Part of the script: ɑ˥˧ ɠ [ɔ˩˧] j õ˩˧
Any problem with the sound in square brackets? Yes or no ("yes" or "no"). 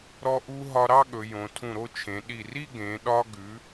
yes